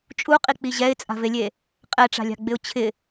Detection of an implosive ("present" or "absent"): absent